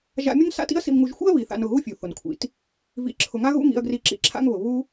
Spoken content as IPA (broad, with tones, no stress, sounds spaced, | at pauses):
ʒ a̰˧ mʲ ʊ˦ ŋ s a̰˦ t ḭ˦ ɐ̯ s ḭ˧ m ŋ u˧ ʒ xʷ ḭ˦ ɐ̯ β i˨ θ a̰˧ n ʊ˦˨ ɣ u˦ fʲ u˨ θ ʊ˨ n kʷʰ ḭ˨ t | v ḭ˨˦ ǁʰ ʊ˨ ŋ a˦ ɣ ṵ˦ ŋ ḭ˧ ɐ̯ ɡ r i˧ ǁ ḭ˧ ǁʰ a̰˦ ŋ β ʊ˨ β u˦